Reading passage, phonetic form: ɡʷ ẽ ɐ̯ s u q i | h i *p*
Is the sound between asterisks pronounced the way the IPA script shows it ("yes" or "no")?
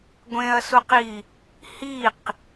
no